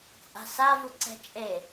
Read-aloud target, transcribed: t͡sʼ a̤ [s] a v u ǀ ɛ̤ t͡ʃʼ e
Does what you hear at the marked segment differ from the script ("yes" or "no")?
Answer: no